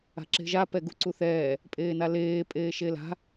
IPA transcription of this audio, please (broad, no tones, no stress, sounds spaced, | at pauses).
a̤ ǁ e̤ ʒ a p ɛ ɡ u ǀ u θ ɛː | pʼ eː n a l eː pʼ eː ʃ e l a̤